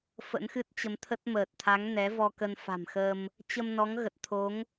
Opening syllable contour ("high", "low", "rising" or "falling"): rising